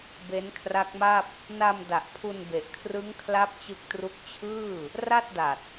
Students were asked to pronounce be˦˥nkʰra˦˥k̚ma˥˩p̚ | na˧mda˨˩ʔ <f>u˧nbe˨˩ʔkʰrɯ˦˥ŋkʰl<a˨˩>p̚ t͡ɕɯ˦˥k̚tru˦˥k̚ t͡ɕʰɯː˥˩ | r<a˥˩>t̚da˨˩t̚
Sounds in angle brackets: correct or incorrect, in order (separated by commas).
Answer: incorrect, incorrect, correct